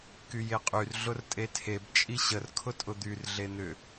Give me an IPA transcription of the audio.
kyjeqʼyr ɮʊrtʼetʰeb t͡ʃʼiɕər kʰʊtʼʊd̪yr ɮen̪ʏ

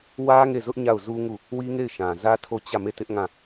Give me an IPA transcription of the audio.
wä˦ ŋe˦˨zʊ˦ʔ ɲa˦˨ʊ̯zu˦ŋu˦˨ | wi˦ŋe˦˨ɪ̯ʃã˨ zä˦ tʰo˦˨ t͡ɕä˦˨me˦˨tɪ˦ʔ ŋã˦˨

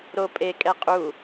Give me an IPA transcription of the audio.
ɾo pʼe kʼɛqʼu

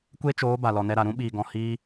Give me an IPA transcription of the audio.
kʷe˦t͡ʃoː˨˦ ba˨lɔ˨nɛ˧ɾa˨ ɾũ˦ɓiː˨ɡɔ̃˨ hiː˦

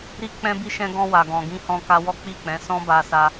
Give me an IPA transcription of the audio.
ɾi˧k͡pɛ̃˧bi˧ ʃɛ̃˧ɡɔ̃˧ wa˨ɡɔ̃˨ɡĩ˧hɔ̃˧ ka˧wɔ˦k͡pi˦˨k͡pɛ̃˨˦ sɔ̃˦ba˧sa˧

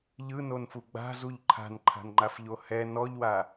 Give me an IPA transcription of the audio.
ʎɯnonfu ɡ͡ba̤zuʎ ǃʰa̤nǃʰa̤nŋ͡ǃafʎo hɛ nɔʎwa

